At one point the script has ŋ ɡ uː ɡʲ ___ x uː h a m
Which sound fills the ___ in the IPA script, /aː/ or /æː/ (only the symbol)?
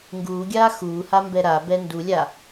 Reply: aː